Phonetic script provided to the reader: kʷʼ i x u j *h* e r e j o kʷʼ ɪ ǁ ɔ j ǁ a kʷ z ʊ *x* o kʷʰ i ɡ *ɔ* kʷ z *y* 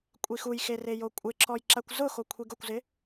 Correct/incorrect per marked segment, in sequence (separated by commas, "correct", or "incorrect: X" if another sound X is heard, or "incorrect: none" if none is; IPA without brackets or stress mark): incorrect: x, correct, incorrect: ʊ, incorrect: ɪ